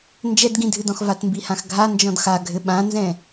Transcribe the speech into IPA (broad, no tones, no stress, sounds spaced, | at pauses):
n d͡ʒ ɛ d ɡ ĩ dʱ ɨ d ɔ̃ x v a t m b i h ã x ɡʱ a n d͡ʒ ɔ̃ d x a ɡʱ ɘ ɓ ã n z ɛ̃